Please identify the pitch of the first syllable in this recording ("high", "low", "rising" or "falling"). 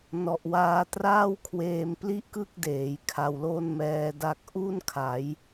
low